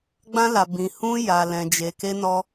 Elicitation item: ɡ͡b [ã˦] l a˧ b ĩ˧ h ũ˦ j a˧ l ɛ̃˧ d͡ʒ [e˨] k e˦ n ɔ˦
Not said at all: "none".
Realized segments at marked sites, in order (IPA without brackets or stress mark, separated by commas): ã˦, e˧